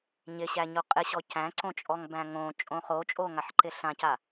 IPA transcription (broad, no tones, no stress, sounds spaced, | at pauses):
ɲ ɪ ɕ æ ɲ o qʼ ɪ ɕ ɔ c æ̃ ǀ õ t͡ʃʼ ɔ ŋ b æ̃ ŋ õ t͡ʃʼ õ χ o t͡ʃʼ o ŋ a ħ ǃ ɪ ɬ ã c a